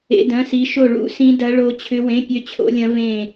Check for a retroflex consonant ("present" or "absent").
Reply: present